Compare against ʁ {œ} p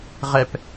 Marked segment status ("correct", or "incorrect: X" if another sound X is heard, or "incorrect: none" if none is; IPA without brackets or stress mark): incorrect: ɛ